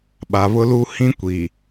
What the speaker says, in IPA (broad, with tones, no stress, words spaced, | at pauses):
ɓa˨βʊ˦lu˦ hĩ˦kʷiː˨